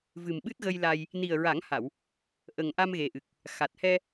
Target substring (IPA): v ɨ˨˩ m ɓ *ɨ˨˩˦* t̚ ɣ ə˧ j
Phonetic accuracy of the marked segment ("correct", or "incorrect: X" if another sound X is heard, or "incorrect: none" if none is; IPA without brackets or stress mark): incorrect: ɨ˦˥